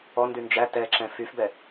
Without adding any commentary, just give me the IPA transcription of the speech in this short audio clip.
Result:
ɔ n d y n d͡ʒ æ t ɛ ǁ ɛ̃ f y f b ɛ

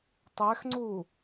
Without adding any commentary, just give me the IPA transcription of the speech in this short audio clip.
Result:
tˤ ɛ x ŋ͡ǀ u

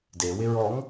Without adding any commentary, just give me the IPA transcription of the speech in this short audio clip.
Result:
d e w ɪ ɹ ɔ ŋ

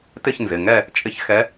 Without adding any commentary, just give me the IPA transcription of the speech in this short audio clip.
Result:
t ɪ˥˧ ç n z ɪ˩˧˩ ŋ ɛ˥˧ | t͡ʃʼ ɪ˧˥ ç x ɛ˧˥

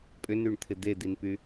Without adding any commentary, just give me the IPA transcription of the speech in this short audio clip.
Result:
pʼ ʏ n y ɳ t̪ʰ ɪ d̪ e d̪ i n p y

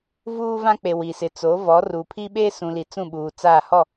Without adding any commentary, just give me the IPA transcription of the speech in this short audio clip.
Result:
v uː˦ v ã˦ k͡p e˨ w i˨ s ɪ˨ t͡s o˨˦ v ɔ˨˦ r u˨ pʰ i˦ ɓ e˦ s ũ˨ l i˨ t͡s ũ˦˨ ɓ uː˨ t͡s aː˦˨ h ɔ˦˨

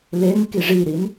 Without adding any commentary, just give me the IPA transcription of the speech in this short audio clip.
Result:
l e n k i ʐ i ɾ i n

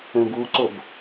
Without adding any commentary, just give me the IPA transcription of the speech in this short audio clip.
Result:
ə̃ b u ǀ o b

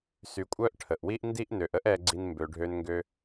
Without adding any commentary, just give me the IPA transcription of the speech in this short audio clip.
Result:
s y˨ kʷʼ œ˥ ʔ ʈʰ ə˩ ʔ w i˦ ʔ n d i˦ ʔ n ø˩ ʔ ə˦ ʔ ɛ˨ ɡ͡ǀ i˨ n m b ø˩ ɖʱ ø˨ n ŋ ɡ ø˨

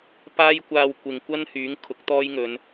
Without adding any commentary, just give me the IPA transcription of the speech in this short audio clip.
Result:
p aː˥ j kʷ aː˧ w kʷ ɪ˨ ŋ kʷ ɐ˥ n h yː˨˥ ŋ kʰ ʊ˨˥ k̚ t̪ ɔː˥ j ŋ ɵ˨˧ n

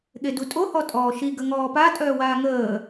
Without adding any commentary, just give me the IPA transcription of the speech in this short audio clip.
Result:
ɠ e d u tʼ o h ɔ tʼ ɔː ʃ i ɡ ə ŋ ɔː p a tʼ œː w aː ŋ əː

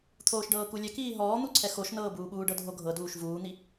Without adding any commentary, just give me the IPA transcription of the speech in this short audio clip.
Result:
t̪ʰ oː ʃ ɖ ɤː k u lʲ ɛ k iː ɦ ɔː n̪ u ǀʰ ɛ x o ʃ n ɤː b uː ɓ uː ɖ ɤ dʱ o ɡʱ ɤ d uː ʃ v uː n̪ i

